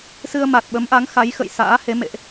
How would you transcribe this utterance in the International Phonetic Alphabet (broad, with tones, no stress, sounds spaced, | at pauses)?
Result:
s ɨ˧ ə̯ m a˨˩ t̚ ɓ ə˨˦ m ʔ a˨˦ ŋ x a˨˦ j x ə̰˧˨ j s a̰ː˧˥ h e˨˦ m ḛ˧˨ ʔ